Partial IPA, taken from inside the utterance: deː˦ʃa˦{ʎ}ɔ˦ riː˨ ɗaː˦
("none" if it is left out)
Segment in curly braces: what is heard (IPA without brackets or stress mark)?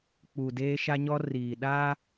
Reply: ɲ